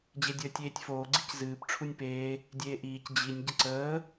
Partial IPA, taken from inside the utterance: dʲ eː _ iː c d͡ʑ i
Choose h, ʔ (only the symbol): ʔ